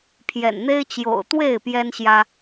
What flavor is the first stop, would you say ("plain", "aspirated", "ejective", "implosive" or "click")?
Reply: aspirated